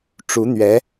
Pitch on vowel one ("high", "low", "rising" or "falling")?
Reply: rising